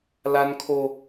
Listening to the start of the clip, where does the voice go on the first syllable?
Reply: high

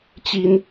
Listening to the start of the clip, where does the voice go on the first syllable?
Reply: high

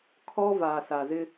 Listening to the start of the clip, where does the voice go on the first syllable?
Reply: high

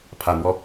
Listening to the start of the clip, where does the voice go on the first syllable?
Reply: low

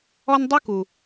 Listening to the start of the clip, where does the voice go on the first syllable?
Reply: high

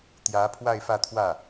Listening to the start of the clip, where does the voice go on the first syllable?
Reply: rising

